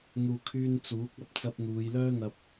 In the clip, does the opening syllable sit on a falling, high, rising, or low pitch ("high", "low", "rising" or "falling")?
low